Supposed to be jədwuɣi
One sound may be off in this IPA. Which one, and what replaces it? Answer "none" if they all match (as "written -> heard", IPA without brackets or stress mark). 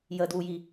ɣ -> j